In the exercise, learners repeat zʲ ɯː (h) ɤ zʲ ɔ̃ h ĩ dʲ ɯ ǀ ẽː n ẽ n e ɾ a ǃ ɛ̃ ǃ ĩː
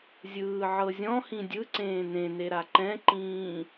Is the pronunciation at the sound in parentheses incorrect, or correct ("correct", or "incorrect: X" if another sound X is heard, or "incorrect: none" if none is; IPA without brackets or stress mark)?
incorrect: ʕ